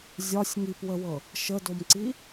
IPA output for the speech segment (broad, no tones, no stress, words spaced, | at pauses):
zʲɒsʲ ŋipwəwɤ | ʃədomǀi